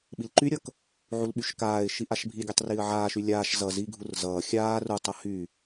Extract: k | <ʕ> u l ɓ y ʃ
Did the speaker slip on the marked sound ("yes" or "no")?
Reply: no